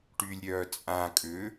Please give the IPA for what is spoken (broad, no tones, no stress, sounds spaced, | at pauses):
ʈ y lʲ ɾʲ œː t͡sʼ ã kʼ ʏ